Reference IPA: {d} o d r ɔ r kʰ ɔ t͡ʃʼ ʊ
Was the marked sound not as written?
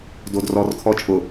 no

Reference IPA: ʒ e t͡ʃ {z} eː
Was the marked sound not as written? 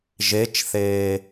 yes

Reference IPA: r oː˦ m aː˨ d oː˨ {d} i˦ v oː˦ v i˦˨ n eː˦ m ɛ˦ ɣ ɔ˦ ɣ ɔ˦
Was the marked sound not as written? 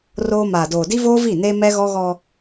no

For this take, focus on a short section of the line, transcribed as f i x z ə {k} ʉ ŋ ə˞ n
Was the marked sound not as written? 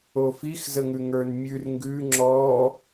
yes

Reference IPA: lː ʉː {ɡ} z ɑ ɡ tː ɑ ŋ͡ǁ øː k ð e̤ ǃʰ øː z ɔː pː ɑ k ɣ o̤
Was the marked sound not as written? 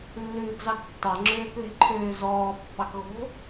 no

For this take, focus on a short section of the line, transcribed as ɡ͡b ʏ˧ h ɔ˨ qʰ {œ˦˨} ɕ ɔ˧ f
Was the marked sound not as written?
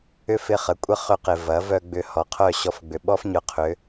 no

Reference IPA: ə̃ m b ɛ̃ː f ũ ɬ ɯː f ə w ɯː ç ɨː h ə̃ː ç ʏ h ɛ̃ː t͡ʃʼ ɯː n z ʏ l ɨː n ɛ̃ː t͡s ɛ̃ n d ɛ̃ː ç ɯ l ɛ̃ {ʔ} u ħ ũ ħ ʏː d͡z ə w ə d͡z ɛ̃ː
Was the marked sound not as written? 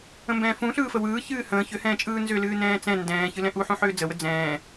no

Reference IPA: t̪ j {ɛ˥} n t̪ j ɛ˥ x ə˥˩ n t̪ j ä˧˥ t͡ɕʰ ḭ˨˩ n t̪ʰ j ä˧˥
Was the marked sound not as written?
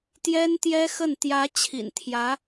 no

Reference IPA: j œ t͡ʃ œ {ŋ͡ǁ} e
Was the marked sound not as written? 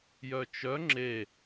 no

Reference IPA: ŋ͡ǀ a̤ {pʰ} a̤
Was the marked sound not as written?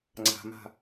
yes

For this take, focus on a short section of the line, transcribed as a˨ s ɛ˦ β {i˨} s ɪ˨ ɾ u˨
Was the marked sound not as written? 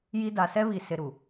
no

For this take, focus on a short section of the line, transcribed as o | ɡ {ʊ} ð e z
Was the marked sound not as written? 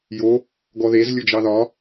yes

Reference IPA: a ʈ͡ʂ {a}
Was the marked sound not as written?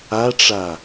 no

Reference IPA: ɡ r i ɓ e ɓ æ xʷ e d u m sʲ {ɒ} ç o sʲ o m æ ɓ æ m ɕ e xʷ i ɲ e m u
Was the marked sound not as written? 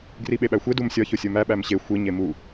no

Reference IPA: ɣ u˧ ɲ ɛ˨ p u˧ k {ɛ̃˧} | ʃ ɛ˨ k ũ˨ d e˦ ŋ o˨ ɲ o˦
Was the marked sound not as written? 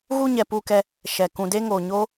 yes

